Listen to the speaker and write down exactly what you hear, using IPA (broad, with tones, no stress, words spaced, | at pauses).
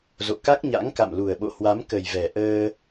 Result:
zo̰˧˨ka˦˥k̚ ɲa̰˧˥ŋka̰˧˨mlu˨˩ə̯ɓo̰˧˨ hwa˨˦mkə˨˩jvɛ˨˩ ʔəː˧